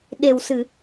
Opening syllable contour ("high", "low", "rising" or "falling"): low